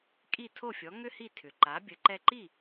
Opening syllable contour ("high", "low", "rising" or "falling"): falling